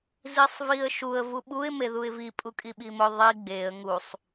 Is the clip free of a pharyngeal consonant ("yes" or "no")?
yes